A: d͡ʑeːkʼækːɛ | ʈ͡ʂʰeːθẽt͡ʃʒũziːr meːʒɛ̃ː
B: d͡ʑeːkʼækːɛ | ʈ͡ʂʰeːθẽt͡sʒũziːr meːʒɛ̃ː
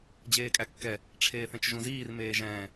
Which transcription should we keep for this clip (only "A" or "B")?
A